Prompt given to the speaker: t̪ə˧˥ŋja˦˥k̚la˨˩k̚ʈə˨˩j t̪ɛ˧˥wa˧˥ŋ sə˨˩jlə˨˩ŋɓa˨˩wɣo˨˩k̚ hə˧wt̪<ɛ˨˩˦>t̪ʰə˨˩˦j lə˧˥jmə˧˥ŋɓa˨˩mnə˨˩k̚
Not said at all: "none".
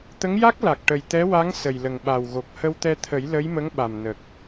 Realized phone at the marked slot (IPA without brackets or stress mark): ɛ˧